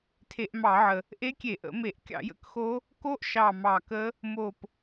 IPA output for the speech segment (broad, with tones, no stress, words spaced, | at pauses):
tʰe˧˩˧ʔmɑ˧˩˧ʕə˨˩ | ʔe˦˥kʲe˧˩˧ʔə̰˧˩˧ me˧˩˧ʔ kʲɑ̰˧˩˧jə̰˦˥kxo˦˥ | ko˦˥ʔʃɑ˨˩ mɑ˨˩kə˦˥ | mo˨˩p